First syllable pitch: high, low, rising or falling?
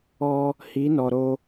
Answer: high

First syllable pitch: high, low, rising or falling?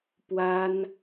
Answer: high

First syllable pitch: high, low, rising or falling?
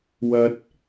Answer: high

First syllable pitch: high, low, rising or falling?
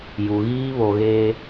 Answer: low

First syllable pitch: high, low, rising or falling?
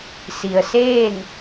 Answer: low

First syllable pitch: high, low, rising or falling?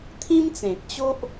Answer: high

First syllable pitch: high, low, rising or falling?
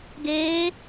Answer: rising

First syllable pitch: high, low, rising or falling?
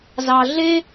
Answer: high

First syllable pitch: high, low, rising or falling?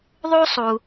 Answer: high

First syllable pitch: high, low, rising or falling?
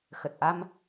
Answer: low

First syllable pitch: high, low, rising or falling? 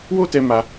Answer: high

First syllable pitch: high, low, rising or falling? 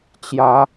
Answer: rising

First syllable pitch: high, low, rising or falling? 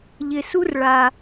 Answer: low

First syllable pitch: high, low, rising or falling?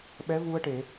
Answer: rising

